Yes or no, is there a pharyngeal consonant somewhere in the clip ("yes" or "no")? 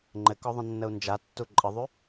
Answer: no